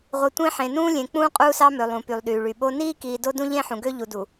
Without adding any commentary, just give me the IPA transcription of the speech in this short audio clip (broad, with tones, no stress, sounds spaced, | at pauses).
ʁʷ i˨ tʷ ẽ˦ ħ ẽ˨ n ũː˦ lʲ ẽ˨ k͡p ũː˦ qʼ uː˦ s ɑ˦ m ø˨ lˠ ũ˨ p y˨ lˠ ɗ yː˨ ɭ y˨ ɓ o˦ n iː˦ k iː˨ d o˦ d ũ˦ ʎ ẽ˦ ħ ũ˨ ɡ ø˦ ʎ u˨ d u˨